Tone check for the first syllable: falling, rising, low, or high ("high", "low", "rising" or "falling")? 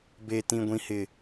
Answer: high